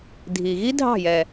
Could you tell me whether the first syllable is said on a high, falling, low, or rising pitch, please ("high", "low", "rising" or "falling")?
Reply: low